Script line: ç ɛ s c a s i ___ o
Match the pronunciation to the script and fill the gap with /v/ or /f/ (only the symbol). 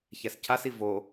v